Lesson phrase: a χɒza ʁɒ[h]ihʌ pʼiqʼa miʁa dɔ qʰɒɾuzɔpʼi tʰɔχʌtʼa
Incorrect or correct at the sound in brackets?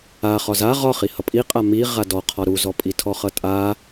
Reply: incorrect: χ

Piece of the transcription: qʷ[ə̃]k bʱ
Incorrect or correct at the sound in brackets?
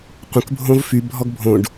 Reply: correct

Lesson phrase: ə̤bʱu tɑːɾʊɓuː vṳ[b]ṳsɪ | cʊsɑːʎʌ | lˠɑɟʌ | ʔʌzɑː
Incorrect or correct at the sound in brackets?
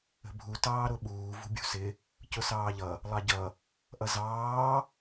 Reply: incorrect: bʲ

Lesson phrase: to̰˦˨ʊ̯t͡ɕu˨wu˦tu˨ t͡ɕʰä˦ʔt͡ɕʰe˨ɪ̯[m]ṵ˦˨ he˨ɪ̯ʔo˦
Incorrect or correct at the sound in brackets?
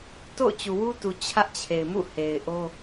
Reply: correct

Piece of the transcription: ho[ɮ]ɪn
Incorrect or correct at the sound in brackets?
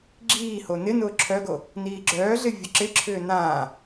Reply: incorrect: n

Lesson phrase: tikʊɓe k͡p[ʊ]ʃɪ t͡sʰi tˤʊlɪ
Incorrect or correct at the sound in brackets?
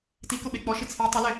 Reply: incorrect: ɔ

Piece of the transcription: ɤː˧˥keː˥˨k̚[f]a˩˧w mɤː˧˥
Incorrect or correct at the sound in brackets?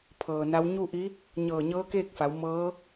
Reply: correct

